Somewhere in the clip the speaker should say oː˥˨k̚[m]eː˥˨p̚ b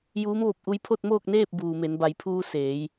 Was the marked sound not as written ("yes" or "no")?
yes